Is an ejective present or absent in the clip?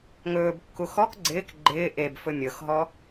absent